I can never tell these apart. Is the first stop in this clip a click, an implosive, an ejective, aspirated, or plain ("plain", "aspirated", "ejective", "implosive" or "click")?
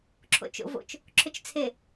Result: click